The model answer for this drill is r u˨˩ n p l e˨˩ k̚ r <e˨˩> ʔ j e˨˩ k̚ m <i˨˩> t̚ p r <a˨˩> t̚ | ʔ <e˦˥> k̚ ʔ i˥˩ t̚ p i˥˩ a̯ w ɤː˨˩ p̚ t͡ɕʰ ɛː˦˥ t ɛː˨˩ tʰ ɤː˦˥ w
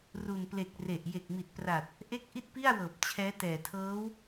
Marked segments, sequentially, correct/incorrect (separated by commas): correct, correct, correct, correct